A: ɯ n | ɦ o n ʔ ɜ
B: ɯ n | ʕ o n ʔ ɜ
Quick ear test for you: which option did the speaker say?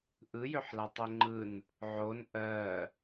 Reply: B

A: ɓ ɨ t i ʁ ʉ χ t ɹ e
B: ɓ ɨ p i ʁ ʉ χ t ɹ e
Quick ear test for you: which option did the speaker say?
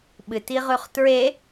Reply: A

